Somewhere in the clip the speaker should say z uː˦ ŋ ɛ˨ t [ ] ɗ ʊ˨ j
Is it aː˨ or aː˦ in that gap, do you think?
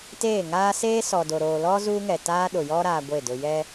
aː˦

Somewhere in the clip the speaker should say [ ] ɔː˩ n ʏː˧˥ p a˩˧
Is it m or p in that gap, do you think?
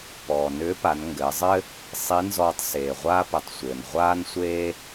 p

